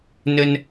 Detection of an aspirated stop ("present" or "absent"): absent